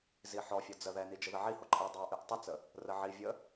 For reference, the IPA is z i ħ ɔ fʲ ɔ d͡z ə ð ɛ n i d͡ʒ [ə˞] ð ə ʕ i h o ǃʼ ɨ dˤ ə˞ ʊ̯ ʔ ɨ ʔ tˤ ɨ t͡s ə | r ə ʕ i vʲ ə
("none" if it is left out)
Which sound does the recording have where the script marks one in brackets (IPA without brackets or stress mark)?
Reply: ə